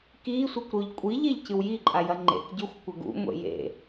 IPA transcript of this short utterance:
k i sʷ e kʷ ɾ o ʎ kʷʼ i ʎ e ʎ c ɨ w j i ǃʼ a j ɐ ŋ͡ǃ ḛ k ɟ ɵ xʷ kʷ ɐ ɡ ṵ ŋʷ ḛ j ḛ

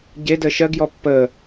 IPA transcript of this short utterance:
ɟ e d əː ʃ ɜ ɡ j ɔ pː əː

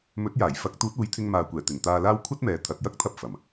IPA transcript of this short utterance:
m ɵ˨˥ t̚ j aː˨˩ j f ɐ˨˥ k̚ t̪ uː˨˥ t̚ uː˨˥ j t̪ʰ ɪ˧ ŋ m aː˨ kʷ ɛː˨˩ t̪ ɪ˨˩ ŋ t̪ aː˧ l aː˥ w kʷʰ ɐ˥ t̚ m ɛː˨ t̪ʰ ɐ˨ t̚ j ɐ˥ k̚ t̪ʰ ɐ˧ p̚ f ɐ˨˩ m

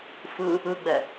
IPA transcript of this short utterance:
f ɯ | ɯ ɡ͡b ɛ

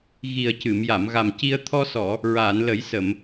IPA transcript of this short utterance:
ɣ i˨˩ ə̯ c ɨ˨˩˨ m j a˨˩˨ m ɣ a˨˩ m c i˧ ə̯ t̪ʰ ɔ˧ s ɔ˨˩˨ | ɹ aː˨˩˨ n l ə˨˩˦ j s ə˨˩˨ m

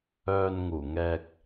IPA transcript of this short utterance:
œː˧ n ŋ uː˨˩ ŋ ɛː˧ k̚

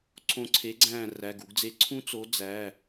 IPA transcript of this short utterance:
ǀʰ õ˧˩ ǀʰ e˨˥ ɡ͡ǀ æ̃ː˧˩ r æ˩˧˩ ɡ u˩˧ ɡ d͡z e˨˥ ǀʰ ũ˦˥ t͡s o˨˥ d͡z æ˩˧˩

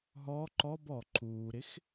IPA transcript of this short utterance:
ɦ ɔ ǃ ɔ b ɔ ǃʰ uː ɾ ɪ x

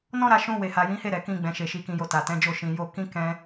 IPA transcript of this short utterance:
n ɔ̃˦ ɾ a˧ ʃ ũ˧ w e˨ h a˨ j ĩ˨˦ h e˦˨ ɾ ɛ˨ k ĩ˧ ɡ͡b ɛ̃˨ ʃ e˨ ʃ i˨ k ĩ˨ j o˨ t a˨ t ɛ̃˨˦ d͡ʒ o˦˨ ʃ ĩ˨ j o˧ k ĩ˦ k ɛ̃˦

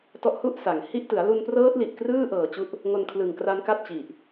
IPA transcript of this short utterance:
t ɔ˦˥ ʔ h u˥˩ ʔ s a˩˦ ŋ h i˥˩ ʔ t ɯ˩˦ a̯ l u˧ n p r ɤː˦˥ t̚ l i˨˩ ʔ k r ɯː˥˩ ʔ ɤː˨˩ t͡ɕ u˦˥ ʔ | ŋ o˧ n kʰ l ɯ˨˩ ŋ k r a˦˥ n k a˥˩ t̚ t͡ɕ i˨˩ ʔ

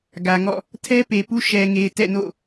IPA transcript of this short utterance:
ɡ ä˨ ŋ ɔ̰˦˨ | tʰ ɛ˦ p e˨ p u˦ ʃ ɛ˨ ŋ e˨ ɪ̯ t ɛ̰˦˨ n o̰˦˨

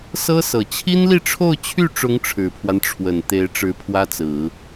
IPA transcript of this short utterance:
s ɤ˥ s ɤ˨˩ t͡ɕʰ i˥ n l i˥˧ ʈ͡ʂʰ o˥˧ ʊ̯ t͡ɕʰ y˥˩ ʈ͡ʂ ʊ˧˥ ŋ ʈ͡ʂʰ ɻ̩˨˩ pʰ w a˦ n ʈ͡ʂʰ w ə˨˩ n t̪ e˧˥ ɪ̯ ʈ͡ʂ ɻ̩˧˥ pʰ w ä˥ t͡s ɹ̩˨˩˦

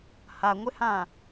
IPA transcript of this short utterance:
h a ŋʷ ɪ h ã

